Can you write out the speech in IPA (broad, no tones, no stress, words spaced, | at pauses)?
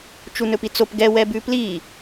t͡ʃunɵpit͡sop ɡɛ wɛbʉpli